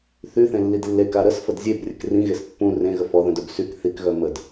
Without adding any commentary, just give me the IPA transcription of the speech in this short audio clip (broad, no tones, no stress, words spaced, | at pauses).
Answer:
θyθẽlːid lːeka ɾəsfəd zʲebrʲək rĩɣes pːũ rẽɣə fɔðœ̃dœb syk θikɣœ məd